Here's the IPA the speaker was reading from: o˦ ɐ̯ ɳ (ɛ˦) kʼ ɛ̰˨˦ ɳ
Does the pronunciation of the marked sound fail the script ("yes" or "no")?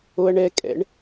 no